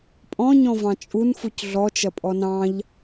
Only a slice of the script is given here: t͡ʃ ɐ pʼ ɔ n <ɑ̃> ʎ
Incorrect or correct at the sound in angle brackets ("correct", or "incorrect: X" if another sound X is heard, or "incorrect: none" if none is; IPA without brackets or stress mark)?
correct